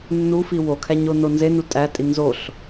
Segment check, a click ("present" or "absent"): absent